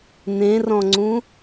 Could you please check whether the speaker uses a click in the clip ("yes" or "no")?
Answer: yes